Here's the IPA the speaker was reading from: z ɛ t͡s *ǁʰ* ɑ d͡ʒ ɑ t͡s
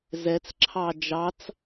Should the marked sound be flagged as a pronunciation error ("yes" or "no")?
no